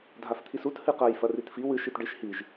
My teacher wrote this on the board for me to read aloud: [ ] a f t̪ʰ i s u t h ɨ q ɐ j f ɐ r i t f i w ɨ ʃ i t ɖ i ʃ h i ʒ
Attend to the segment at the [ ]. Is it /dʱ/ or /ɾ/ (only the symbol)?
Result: dʱ